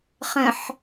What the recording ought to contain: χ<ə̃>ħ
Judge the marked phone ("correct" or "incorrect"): correct